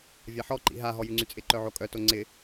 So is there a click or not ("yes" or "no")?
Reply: yes